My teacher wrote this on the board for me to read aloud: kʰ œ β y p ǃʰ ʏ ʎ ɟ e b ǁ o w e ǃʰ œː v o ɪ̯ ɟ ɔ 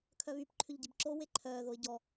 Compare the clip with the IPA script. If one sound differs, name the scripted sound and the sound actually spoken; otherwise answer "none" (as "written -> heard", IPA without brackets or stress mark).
v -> ð